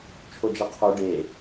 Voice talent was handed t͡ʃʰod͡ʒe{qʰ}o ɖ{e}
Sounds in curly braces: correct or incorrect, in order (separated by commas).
correct, correct